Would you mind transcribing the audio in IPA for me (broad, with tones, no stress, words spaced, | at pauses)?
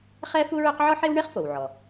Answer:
χɛ˥fu˥ɹɵ˥q ʕɔ˥ħe˥w ɳe˥χfo˩wʕɔ˩